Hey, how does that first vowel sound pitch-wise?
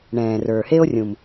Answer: low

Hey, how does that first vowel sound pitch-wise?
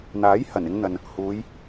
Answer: rising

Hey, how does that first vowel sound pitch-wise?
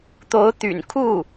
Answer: rising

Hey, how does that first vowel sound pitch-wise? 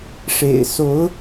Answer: low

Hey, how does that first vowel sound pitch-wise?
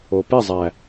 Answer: low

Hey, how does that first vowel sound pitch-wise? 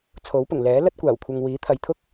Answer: rising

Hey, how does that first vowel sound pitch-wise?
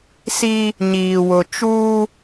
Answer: high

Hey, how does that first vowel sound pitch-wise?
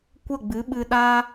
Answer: falling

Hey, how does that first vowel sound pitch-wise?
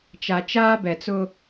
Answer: low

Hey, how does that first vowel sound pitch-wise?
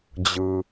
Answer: low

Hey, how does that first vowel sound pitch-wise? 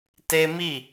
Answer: high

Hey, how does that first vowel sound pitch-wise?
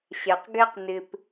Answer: low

